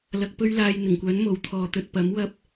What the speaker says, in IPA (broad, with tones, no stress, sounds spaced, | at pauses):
l ɐ˧ k̚ p ɵ˥ ɥ l aː˧ j n̪ ɪ˨˩ ŋ kʷ œː˨˥ n m o˨ w t̪ʰ ɔː˨˧ t̪ ɵ˨ t̚ p ɐ˨˥ m w ɐ˧ p̚